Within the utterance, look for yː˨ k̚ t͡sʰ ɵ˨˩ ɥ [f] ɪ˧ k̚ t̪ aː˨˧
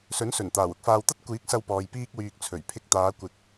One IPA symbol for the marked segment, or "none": pʰ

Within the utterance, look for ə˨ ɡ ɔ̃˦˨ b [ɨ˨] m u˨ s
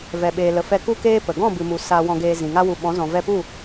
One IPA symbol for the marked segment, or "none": ɨ˨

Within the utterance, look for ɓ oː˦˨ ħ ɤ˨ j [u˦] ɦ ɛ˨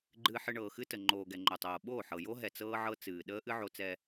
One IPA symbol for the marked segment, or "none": o˦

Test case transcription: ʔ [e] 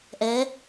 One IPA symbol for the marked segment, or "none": ɛ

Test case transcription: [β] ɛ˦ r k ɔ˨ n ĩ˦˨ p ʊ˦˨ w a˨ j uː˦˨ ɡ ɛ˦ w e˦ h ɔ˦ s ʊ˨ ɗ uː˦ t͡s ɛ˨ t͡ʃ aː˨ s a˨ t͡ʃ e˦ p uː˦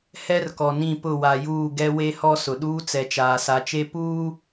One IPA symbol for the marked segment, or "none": h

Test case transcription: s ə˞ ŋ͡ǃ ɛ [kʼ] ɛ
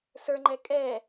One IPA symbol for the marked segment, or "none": kʼ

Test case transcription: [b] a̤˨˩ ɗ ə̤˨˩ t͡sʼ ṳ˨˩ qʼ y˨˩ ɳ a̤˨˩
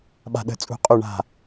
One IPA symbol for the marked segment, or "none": ɓ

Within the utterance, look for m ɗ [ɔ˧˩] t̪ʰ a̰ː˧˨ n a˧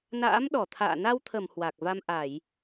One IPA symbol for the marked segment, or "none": ɔ˧˩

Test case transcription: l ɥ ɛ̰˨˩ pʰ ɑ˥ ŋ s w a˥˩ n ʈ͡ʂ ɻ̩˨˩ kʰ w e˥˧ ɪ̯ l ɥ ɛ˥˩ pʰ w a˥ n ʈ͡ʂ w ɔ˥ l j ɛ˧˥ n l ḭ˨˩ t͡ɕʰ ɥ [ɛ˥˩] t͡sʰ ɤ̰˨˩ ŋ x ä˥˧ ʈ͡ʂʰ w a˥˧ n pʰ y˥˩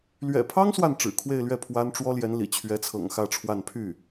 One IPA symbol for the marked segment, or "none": ɛ˧˥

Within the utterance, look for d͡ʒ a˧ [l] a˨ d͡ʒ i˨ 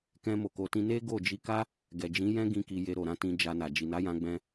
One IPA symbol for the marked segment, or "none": n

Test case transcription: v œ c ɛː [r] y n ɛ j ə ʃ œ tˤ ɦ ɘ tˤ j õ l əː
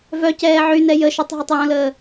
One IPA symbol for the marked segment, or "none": ʕ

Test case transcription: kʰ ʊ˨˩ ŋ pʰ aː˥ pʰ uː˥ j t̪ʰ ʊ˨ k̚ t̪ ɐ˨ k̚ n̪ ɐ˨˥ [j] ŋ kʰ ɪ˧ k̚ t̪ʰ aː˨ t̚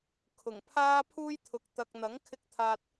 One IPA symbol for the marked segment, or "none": none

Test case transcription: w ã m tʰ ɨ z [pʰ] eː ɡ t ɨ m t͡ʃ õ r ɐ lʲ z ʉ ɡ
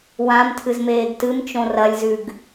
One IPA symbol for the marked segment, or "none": m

